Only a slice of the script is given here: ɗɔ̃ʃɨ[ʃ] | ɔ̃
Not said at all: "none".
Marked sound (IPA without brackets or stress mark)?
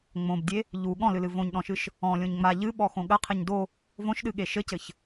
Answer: ʃ